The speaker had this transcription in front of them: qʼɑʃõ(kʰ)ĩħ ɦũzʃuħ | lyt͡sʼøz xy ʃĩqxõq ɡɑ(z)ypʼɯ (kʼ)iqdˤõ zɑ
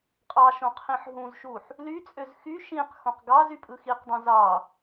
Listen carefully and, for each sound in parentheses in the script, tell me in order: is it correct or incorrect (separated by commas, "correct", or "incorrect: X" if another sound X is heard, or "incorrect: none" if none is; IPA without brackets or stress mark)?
incorrect: qʰ, correct, incorrect: x